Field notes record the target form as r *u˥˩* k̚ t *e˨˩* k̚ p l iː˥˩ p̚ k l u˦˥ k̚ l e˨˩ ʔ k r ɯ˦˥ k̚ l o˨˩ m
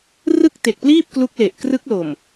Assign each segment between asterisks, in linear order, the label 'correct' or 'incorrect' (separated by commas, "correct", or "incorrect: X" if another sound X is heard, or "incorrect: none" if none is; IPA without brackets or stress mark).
incorrect: ɯ˥˩, correct